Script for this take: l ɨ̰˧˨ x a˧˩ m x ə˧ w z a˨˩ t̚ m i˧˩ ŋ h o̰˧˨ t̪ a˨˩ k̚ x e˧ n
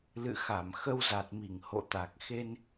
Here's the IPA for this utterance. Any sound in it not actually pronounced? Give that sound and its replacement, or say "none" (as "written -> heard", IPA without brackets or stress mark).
none